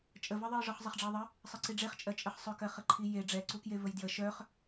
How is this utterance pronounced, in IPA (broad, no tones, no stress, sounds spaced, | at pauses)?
t͡ʃʼ ə v ɜ ðˤ ɜ j ʐ ɔ χ zˤ ə χ ɖ͡ʐ ɜ ðˤ ə | sˤ ə ǀ i ɖ͡ʐ e χ t͡ʃʼ ɜ t͡ʃʼ ə χ sˤ œ k ɜ χ ə ǃʰ i j e ɖ͡ʐ ɛ ǀ u k j e v ə j d j ə ʃ œ χ